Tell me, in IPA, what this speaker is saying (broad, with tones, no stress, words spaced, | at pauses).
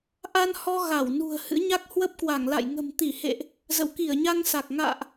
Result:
ʔa˧nhɔ˧ ɣa˧˩w nṳ˨˩ə̯ hɨ̰˧˥ɲa˦˥k̚ hwə˦˥p̚kwa˧˩ŋla̰˧˨j ŋə̤˨˩mt̪i˧˩hḛ˧˨ʔ | zə̰˧˨wki˧˩ə̯ɲa˧ŋ sa˨˩k̚ ŋa̰ː˧˨ʔ